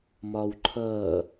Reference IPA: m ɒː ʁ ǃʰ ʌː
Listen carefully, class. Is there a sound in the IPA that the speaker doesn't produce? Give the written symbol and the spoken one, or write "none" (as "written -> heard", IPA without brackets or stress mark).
ʁ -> w